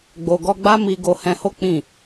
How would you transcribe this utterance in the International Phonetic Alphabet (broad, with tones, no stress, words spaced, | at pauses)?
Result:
ɡ͡bo˧ ɡɔ˦ ɡ͡ba˦mi˧ ɡo˧hɛ̃˧ho˦ k͡pĩ˦˨